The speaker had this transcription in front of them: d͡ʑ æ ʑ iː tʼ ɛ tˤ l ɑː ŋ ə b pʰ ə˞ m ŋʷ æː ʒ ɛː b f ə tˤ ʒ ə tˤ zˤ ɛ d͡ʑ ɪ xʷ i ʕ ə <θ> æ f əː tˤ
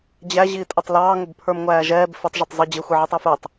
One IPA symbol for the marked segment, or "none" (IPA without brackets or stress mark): tˤ